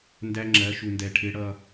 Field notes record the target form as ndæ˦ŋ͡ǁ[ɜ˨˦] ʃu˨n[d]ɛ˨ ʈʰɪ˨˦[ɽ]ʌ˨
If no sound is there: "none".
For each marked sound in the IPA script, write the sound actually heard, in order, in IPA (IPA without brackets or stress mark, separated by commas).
ɜ˨˦, d, ɽ